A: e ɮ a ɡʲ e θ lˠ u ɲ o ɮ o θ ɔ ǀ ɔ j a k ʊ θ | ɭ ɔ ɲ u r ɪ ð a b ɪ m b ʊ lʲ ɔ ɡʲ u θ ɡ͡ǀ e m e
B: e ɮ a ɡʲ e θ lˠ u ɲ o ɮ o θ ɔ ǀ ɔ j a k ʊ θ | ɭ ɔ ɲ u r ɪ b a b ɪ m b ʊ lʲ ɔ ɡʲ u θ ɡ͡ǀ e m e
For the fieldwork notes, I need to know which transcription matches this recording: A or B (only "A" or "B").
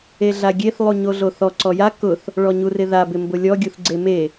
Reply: A